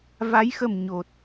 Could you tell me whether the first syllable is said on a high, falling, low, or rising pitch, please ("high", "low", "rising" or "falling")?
rising